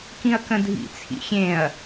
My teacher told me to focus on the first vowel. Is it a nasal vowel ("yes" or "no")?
yes